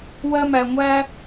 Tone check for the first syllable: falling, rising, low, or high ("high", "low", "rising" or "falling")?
high